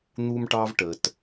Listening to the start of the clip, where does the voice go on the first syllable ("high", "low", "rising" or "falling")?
high